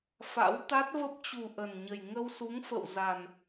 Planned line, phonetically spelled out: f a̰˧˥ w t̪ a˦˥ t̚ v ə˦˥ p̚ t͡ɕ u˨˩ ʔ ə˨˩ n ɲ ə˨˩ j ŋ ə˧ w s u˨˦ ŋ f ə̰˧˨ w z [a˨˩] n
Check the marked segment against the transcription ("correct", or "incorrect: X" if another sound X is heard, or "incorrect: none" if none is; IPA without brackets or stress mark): correct